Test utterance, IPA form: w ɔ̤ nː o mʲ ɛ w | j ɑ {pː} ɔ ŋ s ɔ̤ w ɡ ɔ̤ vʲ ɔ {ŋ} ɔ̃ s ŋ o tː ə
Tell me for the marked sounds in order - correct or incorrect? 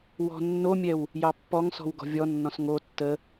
correct, incorrect

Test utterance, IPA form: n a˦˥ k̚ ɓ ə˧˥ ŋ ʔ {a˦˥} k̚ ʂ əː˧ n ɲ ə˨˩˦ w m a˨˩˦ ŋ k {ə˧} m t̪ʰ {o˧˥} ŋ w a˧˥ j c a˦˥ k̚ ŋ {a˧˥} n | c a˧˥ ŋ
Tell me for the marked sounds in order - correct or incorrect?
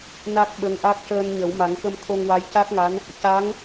correct, correct, incorrect, correct

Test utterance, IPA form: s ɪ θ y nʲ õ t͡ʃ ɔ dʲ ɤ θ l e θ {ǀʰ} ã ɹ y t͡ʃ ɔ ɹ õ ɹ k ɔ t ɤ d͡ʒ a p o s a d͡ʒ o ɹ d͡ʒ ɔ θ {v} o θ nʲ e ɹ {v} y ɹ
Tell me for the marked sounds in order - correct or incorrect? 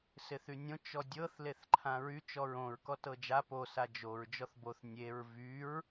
incorrect, incorrect, correct

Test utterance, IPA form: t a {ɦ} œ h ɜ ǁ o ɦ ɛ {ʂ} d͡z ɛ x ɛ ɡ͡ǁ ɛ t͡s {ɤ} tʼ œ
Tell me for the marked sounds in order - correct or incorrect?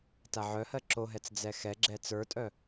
incorrect, incorrect, incorrect

